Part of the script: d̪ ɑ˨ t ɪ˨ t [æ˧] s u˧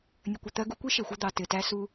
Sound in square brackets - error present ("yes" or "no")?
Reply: no